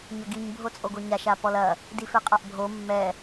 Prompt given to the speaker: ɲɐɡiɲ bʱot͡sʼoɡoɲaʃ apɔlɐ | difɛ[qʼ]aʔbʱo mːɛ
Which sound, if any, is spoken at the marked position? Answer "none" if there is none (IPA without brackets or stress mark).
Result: qʼ